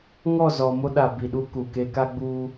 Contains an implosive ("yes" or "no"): yes